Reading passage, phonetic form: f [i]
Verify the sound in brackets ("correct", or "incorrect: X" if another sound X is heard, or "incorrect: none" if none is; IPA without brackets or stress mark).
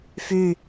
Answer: incorrect: y